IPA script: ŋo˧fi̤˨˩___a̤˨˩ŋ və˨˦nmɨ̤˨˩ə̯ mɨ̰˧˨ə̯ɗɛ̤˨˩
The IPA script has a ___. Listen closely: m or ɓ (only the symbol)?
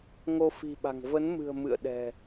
ɓ